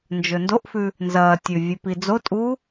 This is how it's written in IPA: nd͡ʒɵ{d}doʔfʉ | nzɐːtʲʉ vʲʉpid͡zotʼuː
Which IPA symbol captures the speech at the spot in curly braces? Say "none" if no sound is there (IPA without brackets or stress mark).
n